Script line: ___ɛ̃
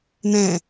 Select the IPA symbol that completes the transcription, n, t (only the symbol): n